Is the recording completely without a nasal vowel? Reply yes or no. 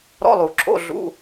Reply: yes